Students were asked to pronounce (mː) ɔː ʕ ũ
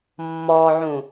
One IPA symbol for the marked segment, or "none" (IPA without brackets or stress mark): mː